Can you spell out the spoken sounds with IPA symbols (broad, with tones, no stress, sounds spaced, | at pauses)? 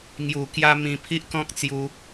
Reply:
ŋ j u˨˩ k j a˧ m ĩ˧ pʰ i˦ ʔ k ɔ̃˦ k̚ t͡s j u˧